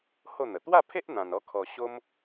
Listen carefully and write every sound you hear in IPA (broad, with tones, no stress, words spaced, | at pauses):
ho˥˧n̪ə˨˩ t̪wa˥˧pʰe˦ʔ n̪ã˧nɔ˦ kʰɔ˧ ɕo˦m